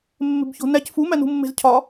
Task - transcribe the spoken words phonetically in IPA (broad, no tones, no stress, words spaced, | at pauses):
mːe̤bço̤næc fu mænṳmːe̤zcʰɒ